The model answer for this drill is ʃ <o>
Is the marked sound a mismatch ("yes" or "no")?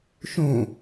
yes